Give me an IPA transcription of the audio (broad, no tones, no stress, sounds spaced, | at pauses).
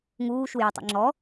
ŋ uː ʃ u j œ tˤ ḛ ŋ͡ǁ ɔ